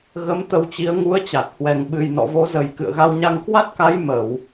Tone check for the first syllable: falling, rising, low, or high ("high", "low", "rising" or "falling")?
rising